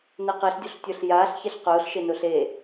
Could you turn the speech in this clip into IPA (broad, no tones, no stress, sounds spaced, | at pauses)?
n ɛ q e ɬ dʲ o ɬ tʲ ʊː ɬ j aː ɬ ç ɛ ɬ q ʊː ɬ ʃ e n ʊː ɬ e